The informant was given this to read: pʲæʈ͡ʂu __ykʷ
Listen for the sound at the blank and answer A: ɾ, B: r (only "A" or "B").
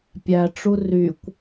B